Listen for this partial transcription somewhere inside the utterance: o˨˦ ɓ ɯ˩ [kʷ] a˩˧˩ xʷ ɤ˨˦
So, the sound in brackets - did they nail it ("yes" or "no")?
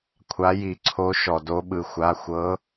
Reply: no